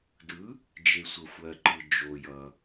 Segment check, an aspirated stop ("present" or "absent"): absent